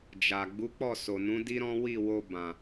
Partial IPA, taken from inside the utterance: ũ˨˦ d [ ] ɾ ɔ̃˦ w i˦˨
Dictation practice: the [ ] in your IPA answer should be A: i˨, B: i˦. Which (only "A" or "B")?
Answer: B